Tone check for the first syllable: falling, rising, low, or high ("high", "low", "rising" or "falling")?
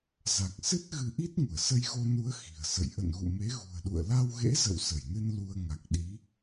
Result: low